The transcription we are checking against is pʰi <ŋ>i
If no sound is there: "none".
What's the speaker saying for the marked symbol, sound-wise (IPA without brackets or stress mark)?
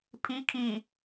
kʰ